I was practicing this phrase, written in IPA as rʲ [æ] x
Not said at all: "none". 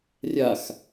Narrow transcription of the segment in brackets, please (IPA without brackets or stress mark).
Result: a